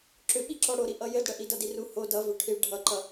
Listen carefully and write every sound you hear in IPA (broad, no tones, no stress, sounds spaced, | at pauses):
ǁ ʏ ɓ i ǁ ɔ ɽ o ɾ i ʔ ʌ j ɘ d ɽ ə ʔ i d ʌ d i r u h o d ʌ v ʏ ʈʰ i ɭ ɖʱ ʌ ǃ ʌ